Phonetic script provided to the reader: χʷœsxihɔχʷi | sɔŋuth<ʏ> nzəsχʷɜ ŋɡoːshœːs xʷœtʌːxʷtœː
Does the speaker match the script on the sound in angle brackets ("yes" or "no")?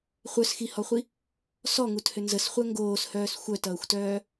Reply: yes